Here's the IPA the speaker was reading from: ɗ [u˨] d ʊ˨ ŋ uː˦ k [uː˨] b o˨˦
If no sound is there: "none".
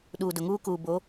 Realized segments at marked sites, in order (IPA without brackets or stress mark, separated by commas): uː˨, uː˨